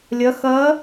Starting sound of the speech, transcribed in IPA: lʲ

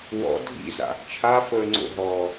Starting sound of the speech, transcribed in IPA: w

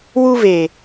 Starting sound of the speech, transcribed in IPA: w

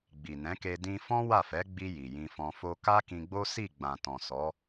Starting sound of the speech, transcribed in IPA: ɡ͡b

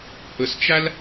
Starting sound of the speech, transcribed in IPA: h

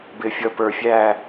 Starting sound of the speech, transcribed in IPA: b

